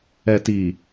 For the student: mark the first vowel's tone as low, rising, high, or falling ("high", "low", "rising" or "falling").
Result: low